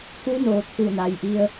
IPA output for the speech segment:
ku˧˥noː˩˧ t̪ʰu˧˩na˩jʔi˧ə̯

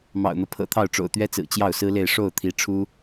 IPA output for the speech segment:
mɑ̰˨˩ʊ̯n̪ɤ˦ pʰɤ̰˨˩t̪ʰɑ˥˩ʊ̯ ʈ͡ʂo̰˨˩ʊ̯t̪ɥɛ˥t͡sɹ̩˨˩ t͡ɕjɑ˥˩ʊ̯sɹ̩˥le˥˧ɪ̯ ʂo˥˩ʊ̯t̪ʰi˧˥ʈ͡ʂʰu˥

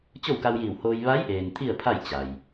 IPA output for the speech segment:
t͡ɕo˥˨wka˧wjiː˧˩whoː˧j ʋa˧˥jʔeː˩n t̪ʰi˥˨ə̯ pʰa˥˨j t͡ɕa˩j

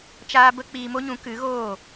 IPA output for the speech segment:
t͡ʃaː˦bə˦ k͡piː˧mo˦ɲũ˨˦ kɨ˨˦ɣoː˦˨

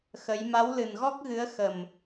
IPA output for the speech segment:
xə˨˦j ma˨˦wlɨ˨˩nɣɔ˦˥k̚ɣɨ˨˦ə̯ xə˨˩m

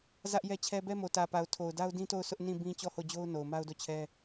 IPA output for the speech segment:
zä˦ʔjɛ˦t͡ɕʰɛ˦ bɛ˦mo˨tä˨pa˨ʊ̯ tʰo˨ʊ̯da˦ʊ̯dĩ˦ to˦˨ʊ̯sʊ˦ʔ nĩ˦˨bĩ˦ t͡ɕɔ˦˨ho˦˨d͡ʑo˦ʊ̯ no˨ʊ̯ma˦ʊ̯do˦˨t͡ɕʰɛ˦

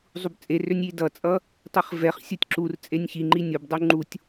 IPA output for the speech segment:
zˤubt͡sʼerønʲ idʌt͡sʼʌ | tˤiχvɛχsʲutʲ ǁur t͡sʼenʲçiŋ͡ǃi nʲobdˤu ŋ͡ǃutʲ

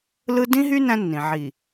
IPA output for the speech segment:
lɯ˦ dĩ˦ɦy˦ næ̃˦nːĩ˨ ʕi˨

